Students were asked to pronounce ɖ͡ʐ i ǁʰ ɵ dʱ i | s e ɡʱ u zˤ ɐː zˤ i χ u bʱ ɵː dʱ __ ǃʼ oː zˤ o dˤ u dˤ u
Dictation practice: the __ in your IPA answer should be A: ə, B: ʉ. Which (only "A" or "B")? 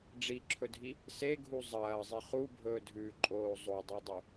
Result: B